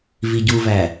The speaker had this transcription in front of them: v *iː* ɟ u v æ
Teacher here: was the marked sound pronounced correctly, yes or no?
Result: no